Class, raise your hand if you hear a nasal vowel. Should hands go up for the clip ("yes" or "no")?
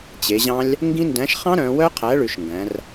yes